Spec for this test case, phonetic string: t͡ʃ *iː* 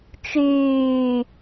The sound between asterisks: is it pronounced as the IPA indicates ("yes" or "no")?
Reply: no